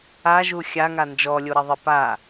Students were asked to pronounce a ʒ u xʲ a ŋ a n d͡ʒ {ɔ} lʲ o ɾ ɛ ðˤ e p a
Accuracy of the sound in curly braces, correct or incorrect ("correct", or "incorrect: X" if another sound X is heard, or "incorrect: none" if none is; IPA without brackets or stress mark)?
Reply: correct